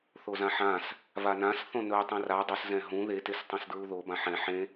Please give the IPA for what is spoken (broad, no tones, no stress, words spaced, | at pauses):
θozãħãs | vanãs θõnɵ tˤɛ̃ra dˤɵszɛ̃ ɦũ ðetestˤɛ̃s dɹuðobã ħɛ̃ ħẽ